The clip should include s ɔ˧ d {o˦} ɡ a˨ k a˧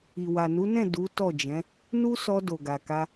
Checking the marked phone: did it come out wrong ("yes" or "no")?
yes